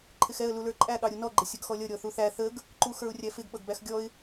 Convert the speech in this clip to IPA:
ǃʰɪxɛə̯ lulə˞ǃʼæ ɠɑɾʲunɔ ɡ͡ǃɪsʲʌɡxɔlʲʌ ɾʲɔθuθæ θəɡ | ǃuxə˞ʊ̯rʲæfɪɡ ɓʌɡbæxɡʲɔɪ̯

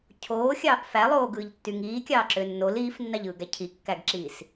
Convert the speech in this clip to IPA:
cʰoːxʲɑːʔ fælˠoːɡɯːʎtːy ŋiːkʲɑːǁø nːol iːfnːɑʎɯːɡæ cʰikːæɡǁiːs

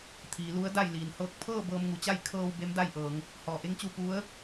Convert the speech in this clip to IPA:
t̪ʰiː˩˧lu˧˥ə̯da˥˨jliː˩n hɤː˧˩k̚pʰɤː˥˨ bɤː˧mŋu˩t͡ɕa˥˨j kʰɤː˧w be˧˥mda˥˨jʔɤː˩˧ŋ | hɔː˩ʔe˧˥ŋt͡ɕu˧ pu˧˥ə̯

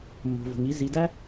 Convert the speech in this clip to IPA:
mːo̤˩vo̤˩ŋi˧˥ zi˩˧dæ˥

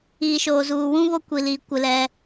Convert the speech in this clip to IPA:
iː˨ʃoː˨zuː˨ wũ˦βo˦kʷi˨li˨ kʷɪ˦lɛ˦

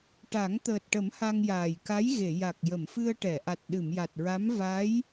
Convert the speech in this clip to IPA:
ʈa˨˩˦ŋt̪əː˨˩t̚ʈə˨˩˦m ha˧ŋjaː˨˩jka˧˥j ɣe˨˩˨ja˨˩k̚ jə˨˩˨mfɨ˧ə̯ʈɛ˨˩˨ʔa˨˩t̚ ɗɨ˨˩˨mja˨˩t̚ɹa˧˥m va˧˥j

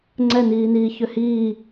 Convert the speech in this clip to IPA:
ŋ͡ǀɛniːniː çøhiː

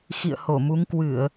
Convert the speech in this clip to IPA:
xḭ˧˨ə̯ho˧˩mu˨˦ŋ kwɨ˧˩˨ə̯

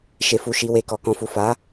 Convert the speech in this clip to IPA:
ʃe˨fu˨ʃi˨ we˨kɔ˨kɔ̃˨fu˨ fa˨˦

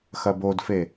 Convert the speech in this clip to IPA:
xɐbodfe

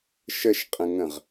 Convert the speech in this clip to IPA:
ʃəʃqʼə̃ŋə̃ʁ

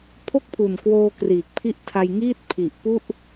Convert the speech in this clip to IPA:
pʰo˥˩k̚pʰu˨˩nkwoː˧ kriː˨˩k̚pʰi˦˥ʔtʰa˧jŋiː˥˩t̚ pʰi˨˩ʔpu˥˩ʔ

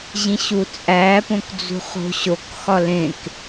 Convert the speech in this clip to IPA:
ʑĩɕut͡sʼæpõk d͡zṳχo̤ɕokxɒ lẽk

